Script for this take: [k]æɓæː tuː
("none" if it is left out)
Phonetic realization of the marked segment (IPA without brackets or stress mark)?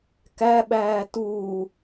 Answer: k